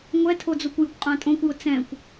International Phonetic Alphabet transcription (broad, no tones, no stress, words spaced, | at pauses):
ŋʷɛtʰod͡zokʷ jʊkʷqʼãtʼõkʷjʊ t͡sɛ̃kʷ